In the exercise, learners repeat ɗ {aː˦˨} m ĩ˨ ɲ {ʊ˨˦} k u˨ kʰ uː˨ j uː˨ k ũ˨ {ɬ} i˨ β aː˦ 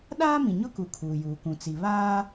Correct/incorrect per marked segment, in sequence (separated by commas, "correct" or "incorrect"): incorrect, incorrect, incorrect